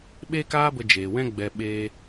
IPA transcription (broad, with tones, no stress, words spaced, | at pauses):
ɓe˦kaː˦ bə˧d͡ʒeː˨wɛ̃˦ ɡ͡bɛ˧ɓeː˦